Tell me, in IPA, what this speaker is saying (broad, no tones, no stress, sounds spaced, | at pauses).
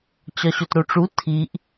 t͡ɕ ɒ ɕ o t ɾ o ʈ͡ʂ u tʰ i ʔ